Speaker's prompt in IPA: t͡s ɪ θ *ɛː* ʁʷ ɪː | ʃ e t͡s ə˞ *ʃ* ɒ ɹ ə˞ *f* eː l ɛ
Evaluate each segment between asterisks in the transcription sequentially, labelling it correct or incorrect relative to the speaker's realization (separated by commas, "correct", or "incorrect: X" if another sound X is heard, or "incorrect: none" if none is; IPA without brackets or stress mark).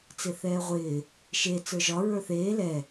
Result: correct, incorrect: ʒ, incorrect: θ